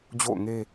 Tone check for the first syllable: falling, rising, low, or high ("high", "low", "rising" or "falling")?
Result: falling